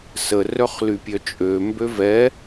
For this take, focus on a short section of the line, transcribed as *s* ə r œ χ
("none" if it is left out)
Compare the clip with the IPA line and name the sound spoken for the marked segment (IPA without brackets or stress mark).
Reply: s